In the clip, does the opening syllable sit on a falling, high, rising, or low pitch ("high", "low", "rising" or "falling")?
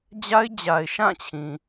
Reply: high